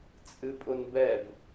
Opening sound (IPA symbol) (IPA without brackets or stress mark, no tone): t͡sʼ